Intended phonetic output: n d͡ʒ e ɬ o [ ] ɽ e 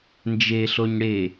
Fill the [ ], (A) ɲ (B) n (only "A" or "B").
A